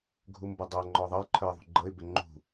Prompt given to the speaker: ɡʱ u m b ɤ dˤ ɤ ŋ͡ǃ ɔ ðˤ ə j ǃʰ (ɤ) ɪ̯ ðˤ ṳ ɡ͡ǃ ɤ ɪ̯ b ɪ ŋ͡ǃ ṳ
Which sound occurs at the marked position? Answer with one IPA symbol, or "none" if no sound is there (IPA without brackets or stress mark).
ə˞